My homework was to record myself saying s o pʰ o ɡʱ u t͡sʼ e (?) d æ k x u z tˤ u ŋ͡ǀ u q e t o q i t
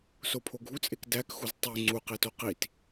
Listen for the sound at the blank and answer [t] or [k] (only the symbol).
k